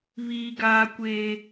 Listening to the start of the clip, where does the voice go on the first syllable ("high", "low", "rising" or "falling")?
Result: high